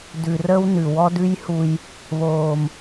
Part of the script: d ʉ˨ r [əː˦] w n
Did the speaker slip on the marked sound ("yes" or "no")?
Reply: no